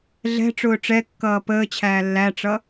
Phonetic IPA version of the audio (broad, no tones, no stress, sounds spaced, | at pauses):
ɮ ɛ̤ ʈ͡ʂ ʊː ʈ͡ʂ ɛ kː ʌː p əː t͡ɕʰ æː lː æ ʈ͡ʂ ʌ